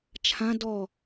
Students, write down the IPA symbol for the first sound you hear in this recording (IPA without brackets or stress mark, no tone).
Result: t͡ʃʰ